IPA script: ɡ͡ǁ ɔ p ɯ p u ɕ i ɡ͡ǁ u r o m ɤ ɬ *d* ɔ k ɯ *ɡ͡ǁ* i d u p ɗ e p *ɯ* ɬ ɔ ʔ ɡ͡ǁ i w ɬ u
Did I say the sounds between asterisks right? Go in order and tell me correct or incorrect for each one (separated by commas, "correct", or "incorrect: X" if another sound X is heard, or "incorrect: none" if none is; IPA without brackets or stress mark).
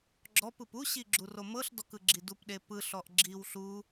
correct, correct, correct